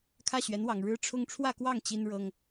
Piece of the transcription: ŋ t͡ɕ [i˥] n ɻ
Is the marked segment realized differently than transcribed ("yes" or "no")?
no